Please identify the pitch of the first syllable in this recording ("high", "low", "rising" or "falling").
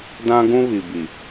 high